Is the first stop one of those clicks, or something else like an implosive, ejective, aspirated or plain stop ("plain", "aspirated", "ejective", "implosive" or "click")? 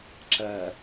click